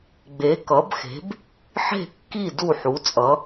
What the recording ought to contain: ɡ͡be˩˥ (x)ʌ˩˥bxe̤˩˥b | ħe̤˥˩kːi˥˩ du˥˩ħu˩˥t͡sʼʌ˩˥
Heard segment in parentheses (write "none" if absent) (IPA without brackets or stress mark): k